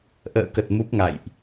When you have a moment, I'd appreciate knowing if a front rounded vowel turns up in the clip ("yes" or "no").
no